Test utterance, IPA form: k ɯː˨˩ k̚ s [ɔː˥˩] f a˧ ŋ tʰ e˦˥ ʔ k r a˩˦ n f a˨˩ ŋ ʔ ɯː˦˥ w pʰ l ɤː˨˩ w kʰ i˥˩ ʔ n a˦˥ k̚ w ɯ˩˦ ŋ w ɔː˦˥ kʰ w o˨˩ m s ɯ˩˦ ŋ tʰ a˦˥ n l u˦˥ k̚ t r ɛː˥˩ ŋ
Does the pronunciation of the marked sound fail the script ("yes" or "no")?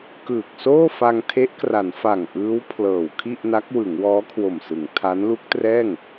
yes